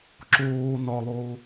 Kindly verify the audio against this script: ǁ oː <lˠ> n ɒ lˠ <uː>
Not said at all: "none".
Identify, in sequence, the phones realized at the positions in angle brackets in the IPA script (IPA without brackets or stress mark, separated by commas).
none, oː